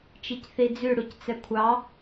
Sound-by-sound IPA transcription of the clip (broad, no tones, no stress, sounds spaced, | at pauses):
t͡ʃ i c θ i d͡z ʉ ɽ u c t͡s ɛ kʷʰ ɑ